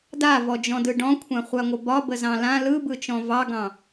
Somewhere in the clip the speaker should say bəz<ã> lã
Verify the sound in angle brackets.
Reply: incorrect: ɑ̃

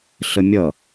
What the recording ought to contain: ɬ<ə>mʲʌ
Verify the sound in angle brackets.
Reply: correct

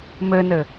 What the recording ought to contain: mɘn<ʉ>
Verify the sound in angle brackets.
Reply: incorrect: ɘ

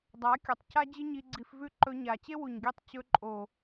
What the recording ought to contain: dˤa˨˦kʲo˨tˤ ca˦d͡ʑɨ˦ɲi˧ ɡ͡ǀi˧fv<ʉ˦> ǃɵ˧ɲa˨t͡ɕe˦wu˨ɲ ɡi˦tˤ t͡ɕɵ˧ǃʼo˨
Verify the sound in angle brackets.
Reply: correct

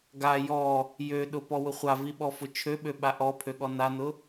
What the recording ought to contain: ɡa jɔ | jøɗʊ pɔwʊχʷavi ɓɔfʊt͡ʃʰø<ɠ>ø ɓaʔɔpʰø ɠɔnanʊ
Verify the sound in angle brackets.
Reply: incorrect: ɓ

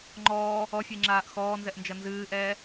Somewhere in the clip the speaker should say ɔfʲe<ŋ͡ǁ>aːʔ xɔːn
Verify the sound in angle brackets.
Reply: correct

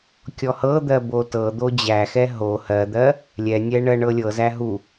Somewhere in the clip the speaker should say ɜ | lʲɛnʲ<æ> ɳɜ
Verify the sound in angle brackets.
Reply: incorrect: ɛ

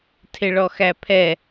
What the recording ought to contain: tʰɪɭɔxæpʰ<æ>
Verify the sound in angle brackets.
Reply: incorrect: ɛ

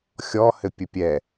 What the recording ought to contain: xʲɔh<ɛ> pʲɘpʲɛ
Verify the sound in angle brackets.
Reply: incorrect: ɘ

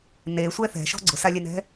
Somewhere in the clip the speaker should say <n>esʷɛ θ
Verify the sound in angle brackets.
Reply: correct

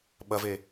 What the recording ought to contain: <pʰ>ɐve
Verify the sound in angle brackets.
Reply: incorrect: ɓ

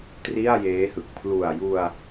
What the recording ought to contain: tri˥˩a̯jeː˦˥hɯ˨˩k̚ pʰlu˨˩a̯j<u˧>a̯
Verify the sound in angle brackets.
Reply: correct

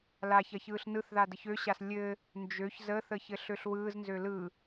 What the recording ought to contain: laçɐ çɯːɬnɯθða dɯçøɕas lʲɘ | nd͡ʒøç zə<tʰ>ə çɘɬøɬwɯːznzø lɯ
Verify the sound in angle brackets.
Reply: incorrect: θ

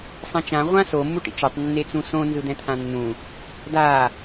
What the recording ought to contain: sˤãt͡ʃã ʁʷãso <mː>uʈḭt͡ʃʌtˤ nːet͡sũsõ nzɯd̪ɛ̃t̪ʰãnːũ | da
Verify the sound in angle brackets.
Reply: correct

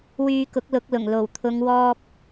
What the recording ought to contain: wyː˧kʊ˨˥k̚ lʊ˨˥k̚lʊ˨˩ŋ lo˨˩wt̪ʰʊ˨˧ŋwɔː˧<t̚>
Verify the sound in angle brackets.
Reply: incorrect: p̚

